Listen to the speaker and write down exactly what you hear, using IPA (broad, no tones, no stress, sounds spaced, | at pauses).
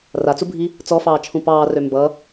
r a t͡s u bʱ i | t͡s ɔ f ɑː t͡ʃʰ ũ p ɑː r ø m b ʌ